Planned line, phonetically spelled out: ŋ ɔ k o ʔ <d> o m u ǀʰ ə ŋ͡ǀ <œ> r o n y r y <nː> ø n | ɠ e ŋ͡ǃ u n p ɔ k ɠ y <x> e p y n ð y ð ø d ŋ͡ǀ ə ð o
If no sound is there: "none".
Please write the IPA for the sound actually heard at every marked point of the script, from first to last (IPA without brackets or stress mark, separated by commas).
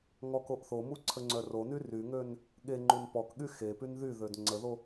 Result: θ, œ, ŋ, x